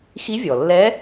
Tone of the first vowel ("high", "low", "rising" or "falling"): rising